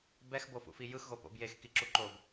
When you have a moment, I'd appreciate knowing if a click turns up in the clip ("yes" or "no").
yes